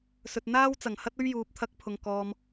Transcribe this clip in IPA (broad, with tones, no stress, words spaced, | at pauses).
sɵ˨t̚n̪aː˥w t͡sɐ˨˩ŋhɐ˥t̚ɵ˥ɥ juː˨p̚t̪ʰɐ˧k̚pʰʊ˨ŋ kɔː˨m